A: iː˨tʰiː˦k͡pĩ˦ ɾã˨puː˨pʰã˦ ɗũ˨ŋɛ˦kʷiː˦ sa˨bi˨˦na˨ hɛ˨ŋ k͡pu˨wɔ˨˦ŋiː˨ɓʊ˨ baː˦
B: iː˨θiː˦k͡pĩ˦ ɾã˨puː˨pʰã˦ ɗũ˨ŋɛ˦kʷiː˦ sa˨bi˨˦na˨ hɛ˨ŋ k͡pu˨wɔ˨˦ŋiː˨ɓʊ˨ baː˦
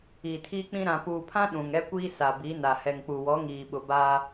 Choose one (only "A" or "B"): A